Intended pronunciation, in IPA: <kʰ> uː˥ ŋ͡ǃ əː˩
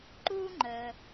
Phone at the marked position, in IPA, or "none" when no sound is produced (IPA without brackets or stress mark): ǃ